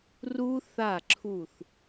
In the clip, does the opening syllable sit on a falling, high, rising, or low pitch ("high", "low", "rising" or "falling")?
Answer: high